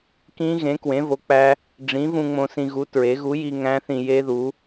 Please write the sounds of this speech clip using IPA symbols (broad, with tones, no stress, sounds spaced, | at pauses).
k ĩ˦˥ ɣ ẽ˨˥ k w ẽ˨˥ v o˨˥ k͡p æ˦˥ | ɖ͡ʐ ĩ˨˥ v ũ˧ ŋ͡m õ˧ s ĩ˧ ɣ u˨˥ t ɹ e˨˥ ɣ u˨˥ j i˧ ŋ æ̃˦˥ θ ĩ˧ j e˦˥ ð u˨˥